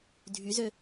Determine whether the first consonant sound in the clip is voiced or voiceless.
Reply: voiced